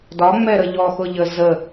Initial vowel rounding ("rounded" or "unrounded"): rounded